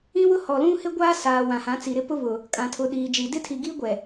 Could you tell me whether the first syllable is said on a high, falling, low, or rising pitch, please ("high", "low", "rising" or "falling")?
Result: high